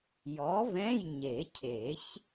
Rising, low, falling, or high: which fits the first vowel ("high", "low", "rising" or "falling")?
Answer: rising